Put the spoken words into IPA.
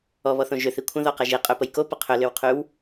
ɔ β ɔ θ õ ʒ ʏ θ i kʷʰ ə̃ ð ɔ q ɐ ʒ i qʼ ø p ə j k o p ə qʰ ʏ l ʏ w qʰ y w

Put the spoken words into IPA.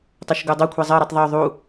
tˤ o ʃ ɡ u dˤ o kʷʰ ɛ zˤ ɜ ɾ i tˤ ðˤ ø ðˤ u

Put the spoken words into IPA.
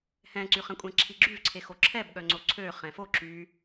h ɛ̃ ǀ y χ ɛ̃ kʷʼ ɛ̃ ǁʰ i ɡ͡ǁ y v ǀʰ e x o ǁʰ ɛ b ɠ œ ŋ͡ǀ o ǀʰ ø χ ɛ̃ f o ǁ y

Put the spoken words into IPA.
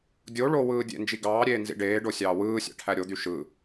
dʲ o ɭ o w ɯː dʲ ḛ n d͡ʒ i ɡ ɑː ɾʲ eː n z ḭ ɖ eː ɖ o sʲ ɑː w ɯː sʲ ɑ̰ ʈʰ æ ɾʲ o d̪ y ʃ ɯ

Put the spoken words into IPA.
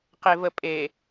q e v ə pʼ e

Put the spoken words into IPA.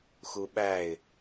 x u ɓ æ ɪ̯

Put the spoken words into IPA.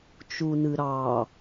t͡ʃ u n ɨ ɾ ɑ

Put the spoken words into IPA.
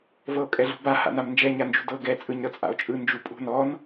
v ɤ o̯ kʼ ɛ ɮ ṳ b a h a̰ n a m n d͡ʒ ɛ ɲ a n d͡ʒ ṳ d ɤ ɡ ɛ t͡sʼ ɯ ɲ ɾ ɤ t͡sʼ a̰ o̯ t͡ʃʼ ɯ n d͡ʒ u pʼ ṳ n ɔ n

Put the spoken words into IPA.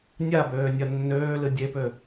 nʲ a b øː nʲ ɐ nː øː l ɨ dʲ e p ø

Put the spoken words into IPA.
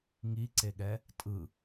ŋ i ǀ e ɠ ɛ | tʼ ɯ

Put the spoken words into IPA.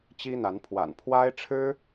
t͡ɕ i˦ n̪ a˨˦ n pʰ w a̰˨˩ n pʰ w a˦ ɪ̯ ʈ͡ʂʰ ɻ̩˦

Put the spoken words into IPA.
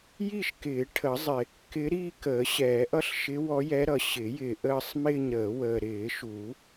j i˥˧ ʃ k ɪː˨˩˦ ʈʰ ə˨˩˦ zˤ ɪ˨ | k ɪ˧˥ ɾ i˥˧ k əː˨˩˦ ɕ ɛː˨˩˦ ʔ ʌ˥˧ ɬ ʃ ɪ˧˥ w ɔ˧˥ j ɛ˧˥ ɾ ʌ˨ ɕ ɪ˨˩˦ j ɪː˨ ʔ əː˥˧ sˤ m ɪː˥˧ ɲ ɾ əː˨˩˦ w əː˨ ɾ ɪː˨˩˦ ʃ u˨˩˦

